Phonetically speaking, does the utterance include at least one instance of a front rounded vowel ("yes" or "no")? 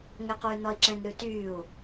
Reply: yes